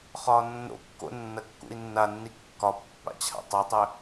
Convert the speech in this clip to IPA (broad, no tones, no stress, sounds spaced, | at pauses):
χ ɒː nː o̰ kː o̰ nː ɐ kː ṵ i̯ nː a nː i kː ɒ pː a̰ t͡ɕʰ a̰ tˤ o tˤ ø